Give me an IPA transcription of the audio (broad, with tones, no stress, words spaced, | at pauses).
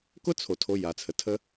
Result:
kʊ˦t͡sʰo˨ tʰo˧ja˨t͡sʰə˨tʰə˦